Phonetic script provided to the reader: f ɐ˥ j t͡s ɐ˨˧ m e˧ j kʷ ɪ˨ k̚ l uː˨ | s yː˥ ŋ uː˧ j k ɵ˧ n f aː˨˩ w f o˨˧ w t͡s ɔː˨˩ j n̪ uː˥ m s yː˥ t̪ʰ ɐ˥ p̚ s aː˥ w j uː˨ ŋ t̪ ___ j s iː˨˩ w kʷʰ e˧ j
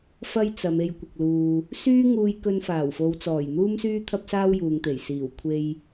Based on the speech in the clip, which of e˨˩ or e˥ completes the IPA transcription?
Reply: e˨˩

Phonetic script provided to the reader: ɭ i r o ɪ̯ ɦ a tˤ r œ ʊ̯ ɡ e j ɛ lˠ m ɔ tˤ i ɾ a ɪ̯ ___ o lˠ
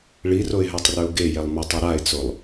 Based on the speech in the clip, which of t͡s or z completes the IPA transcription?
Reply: t͡s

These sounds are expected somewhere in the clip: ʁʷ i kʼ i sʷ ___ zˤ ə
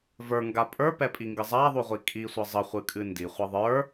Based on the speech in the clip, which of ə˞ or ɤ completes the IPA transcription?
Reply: ɤ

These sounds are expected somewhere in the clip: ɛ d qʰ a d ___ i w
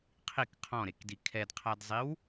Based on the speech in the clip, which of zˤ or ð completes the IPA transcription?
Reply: zˤ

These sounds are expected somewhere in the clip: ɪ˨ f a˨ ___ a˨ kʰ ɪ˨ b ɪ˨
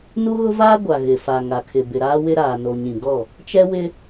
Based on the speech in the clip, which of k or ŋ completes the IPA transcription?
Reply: ŋ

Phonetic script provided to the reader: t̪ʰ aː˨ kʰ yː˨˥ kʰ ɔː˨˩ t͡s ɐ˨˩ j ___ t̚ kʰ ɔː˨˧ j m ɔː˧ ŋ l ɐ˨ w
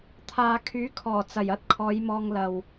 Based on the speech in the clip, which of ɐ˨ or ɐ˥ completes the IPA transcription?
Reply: ɐ˥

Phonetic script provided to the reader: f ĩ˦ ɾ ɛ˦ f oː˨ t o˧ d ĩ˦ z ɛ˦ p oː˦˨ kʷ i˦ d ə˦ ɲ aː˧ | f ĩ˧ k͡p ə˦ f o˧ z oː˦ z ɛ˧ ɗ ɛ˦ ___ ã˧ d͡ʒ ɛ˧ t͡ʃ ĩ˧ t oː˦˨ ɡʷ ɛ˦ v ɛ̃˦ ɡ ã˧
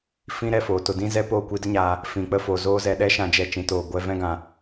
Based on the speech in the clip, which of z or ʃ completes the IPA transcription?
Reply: ʃ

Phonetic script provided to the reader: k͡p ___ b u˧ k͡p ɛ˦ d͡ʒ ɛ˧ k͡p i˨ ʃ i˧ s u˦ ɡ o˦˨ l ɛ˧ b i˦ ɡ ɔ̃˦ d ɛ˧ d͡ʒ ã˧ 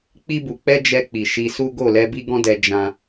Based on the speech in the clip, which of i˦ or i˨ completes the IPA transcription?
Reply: i˦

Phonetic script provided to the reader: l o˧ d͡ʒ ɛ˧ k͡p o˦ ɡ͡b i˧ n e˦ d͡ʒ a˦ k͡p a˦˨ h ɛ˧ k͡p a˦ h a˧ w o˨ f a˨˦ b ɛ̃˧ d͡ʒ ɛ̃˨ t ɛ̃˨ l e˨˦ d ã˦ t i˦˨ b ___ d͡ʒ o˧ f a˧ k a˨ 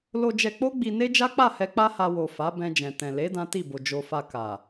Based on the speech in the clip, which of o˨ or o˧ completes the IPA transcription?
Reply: o˨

